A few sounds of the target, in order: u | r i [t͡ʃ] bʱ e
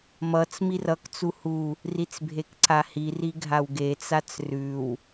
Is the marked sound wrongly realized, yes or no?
yes